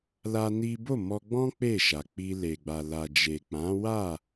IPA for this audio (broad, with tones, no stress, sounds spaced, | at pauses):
l a˦ n i˦ b o˦˨ m ɔ˧ ɡ͡b ɔ̃˦ k͡p e˦˨ ʃ a˨ k͡p i˧ l e˨ ɡ͡b a˨ l a˨ d͡ʒ e˨ k͡p ã˨˦ w a˦˨